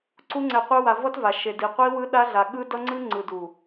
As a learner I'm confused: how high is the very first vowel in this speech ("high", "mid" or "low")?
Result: high